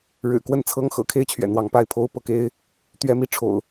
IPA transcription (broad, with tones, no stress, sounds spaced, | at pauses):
ɻ ɻ̩˨˩ k w ə˥˨ n t͡sʰ ɤ˦ ŋ x ɤ̰˨˩ kʰ e˥˨ ɪ̯ t͡ɕʰ ɥ ɛ̰˨˩ n̪ w ɑ˨˦ ŋ p a˥˨ ɪ̯ pʰ o˦ ʊ̯ p ɤ˦ k e˦ ɪ̯ | t̪ ɥ ɛ˨˦ m i˨˦ ʈ͡ʂʰ o̰˨˩ ʊ̯